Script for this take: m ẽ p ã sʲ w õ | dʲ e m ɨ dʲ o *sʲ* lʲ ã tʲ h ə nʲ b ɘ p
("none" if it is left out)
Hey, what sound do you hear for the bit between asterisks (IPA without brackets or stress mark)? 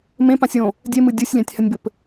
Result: sʲ